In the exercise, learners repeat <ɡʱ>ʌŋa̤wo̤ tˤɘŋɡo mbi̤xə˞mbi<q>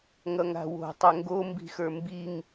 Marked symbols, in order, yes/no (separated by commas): no, no